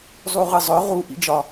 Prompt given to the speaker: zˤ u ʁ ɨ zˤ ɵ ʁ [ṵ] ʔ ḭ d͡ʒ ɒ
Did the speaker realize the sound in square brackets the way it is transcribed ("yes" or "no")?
no